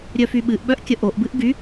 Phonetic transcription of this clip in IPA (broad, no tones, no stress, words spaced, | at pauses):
ɾʲœfyɓɨʔɓœʔ kʲəʔoʔbɨʔ ɡy